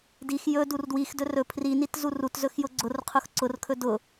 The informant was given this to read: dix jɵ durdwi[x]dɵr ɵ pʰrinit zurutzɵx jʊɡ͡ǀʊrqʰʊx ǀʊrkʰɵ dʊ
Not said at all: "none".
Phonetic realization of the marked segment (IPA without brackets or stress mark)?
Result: x